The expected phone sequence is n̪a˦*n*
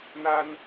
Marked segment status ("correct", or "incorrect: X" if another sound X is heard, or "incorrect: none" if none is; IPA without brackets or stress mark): correct